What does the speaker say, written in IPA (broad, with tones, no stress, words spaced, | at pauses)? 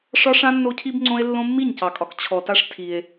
ʂɒ˦ʂã˦ nːo˦cʰi˦bŋ͡ǀõ˦e̯ lːõ˦ mːi˦˨ɲcɑ˨kʼɒ˨k t͡ɕʰɔ˨ta˦ʂ tʰi˦e̯